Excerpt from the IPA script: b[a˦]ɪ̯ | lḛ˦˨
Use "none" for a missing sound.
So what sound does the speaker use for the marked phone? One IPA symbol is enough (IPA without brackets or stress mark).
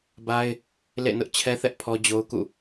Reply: a˦